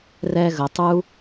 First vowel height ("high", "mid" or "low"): mid